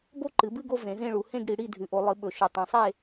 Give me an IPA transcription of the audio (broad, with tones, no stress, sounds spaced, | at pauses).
b o˦˨ ǃ ɨ˩˧ b ɨ˦˨ ɡ o˦˨ v ẽ˩˧ z ẽ˦˨ ɭ u˩˧ h ẽ˦˨ ɡ ɽ i˩˧ ɽ i˦˨ dʱ ʉ˩˧ ʔ o˩˧ lˠ ɨ˩˧ ɓ ɵ˩˧ ʃ ɵ˩˧ tˤ ẽ˩˧ sˤ e˦˨